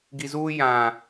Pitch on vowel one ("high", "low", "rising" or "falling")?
low